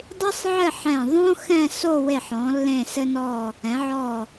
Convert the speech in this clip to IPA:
dˤ i˥ sˤ ʕ ɘ˥˧ ħ ɛ̃˧˩ ðˤ õ˥ x ɛ̃˥˧ s o˥˧ w e˧˩ ħ ɔ̃˩˧ lː ẽ˧˩ s ɘ˧ n ɔ˧˩ | ɛ̃˩˧ ʕ ɔ˧˩

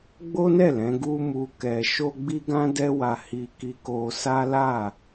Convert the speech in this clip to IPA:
ɡ͡b o˦ n ɛ˦˨ l ɛ̃˨˦ ɡ u˦ m u˧ k ɛ˨ ʃ o˧ ɡ͡b i˦ ɡ ã˦ d ɛ˦ w a˧ h i˧ k i˧ k o˧ s a˦ l a˦˨

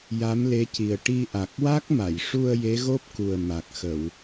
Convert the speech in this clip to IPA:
j a˧˥ m l e˧˥ c i˨˩ ə̯ ʈ i˧ ʔ a˨˩ k̚ w a˦˥ k̚ m a˨˩˨ j ʂ u˧ ə̯ j e˧˥ ɣ o˦˥ p̚ k u˨˩ ə̯ m a˨˩ k̚ x ə˨˩˨ w

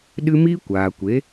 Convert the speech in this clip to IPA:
ɗ ɨ˦ m iː˦ kʷ aː˨ kʷ e˨˦

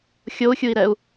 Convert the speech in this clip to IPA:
xʲ o u̯ xʲ u i̯ ɾ ɛ u̯

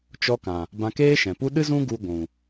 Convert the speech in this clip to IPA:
t͡ʃ ɔ˧ k ã˨ | b ã˧ k eː˦ ʃ ɛ̃˨ p u˦ ɗ ɨ˦ z ũ˦ ɡ u˧ ɡʷ ũ˨

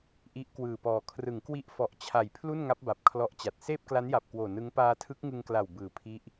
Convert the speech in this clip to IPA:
ʔ i˦˥ ʔ k w ɯː˨˩ p ɔː˨˩ kʰ r ɯ˩˦ ŋ k w i˦˥ ʔ f ɔ˨˩ ʔ t͡ɕʰ a˨˩ j pʰ l u˥˩ n ŋ a˦˥ p̚ b a˨˩ p̚ kʰ l ɔ˦˥ ʔ t͡ɕ a˨˩ t̚ s eː˥˩ p̚ k l a˦˥ n j a˨˩ p̚ k w oː˨˩ n ɯ˦˥ ŋ p aː˧ tʰ ɯ˦˥ k̚ ŋ ɯ˧ ŋ k l a˨˩ w b ɯː˨˩ pʰ i˦˥ ʔ

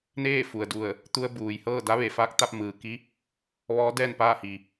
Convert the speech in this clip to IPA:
n eː˥˨ f u˩ ə̯ d u˧˩ ə̯ | t̪ u˧ ə̯ b uː˩ j h ɤː˥˨ d a˧˥ ʋ e˩ f aː˧˥ k̚ t̪ a˧ p̚ m ɯː˩ k i˧˥ | ʋ ɔː˧˥ d ɛː˥˨ n p aː˥˨ h i˩

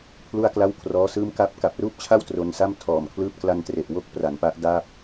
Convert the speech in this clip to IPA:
pʰ l u˥˩ a̯ k l a˥˩ w kʰ r ɔː˦˥ s ɯː˥˩ m k a˥˩ p̚ k a˨˩ p̚ r uː˥˩ p̚ t͡ɕʰ a˥˩ w t r o˧ n s a˥˩ m tʰ ɔː˨˩ m kʰ l ɯː˥˩ p̚ k l a˧ n t r e˨˩ ʔ w o˥˩ k̚ p r a˩˦ n p a˦˥ ʔ d a˥˩ p̚

